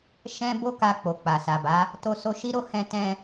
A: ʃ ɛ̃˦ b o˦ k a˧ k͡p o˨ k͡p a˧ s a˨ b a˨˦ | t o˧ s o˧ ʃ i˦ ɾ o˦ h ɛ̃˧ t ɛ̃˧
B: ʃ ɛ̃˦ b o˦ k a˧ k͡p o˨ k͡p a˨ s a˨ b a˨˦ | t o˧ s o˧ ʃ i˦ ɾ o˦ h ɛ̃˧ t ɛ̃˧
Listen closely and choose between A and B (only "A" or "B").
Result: B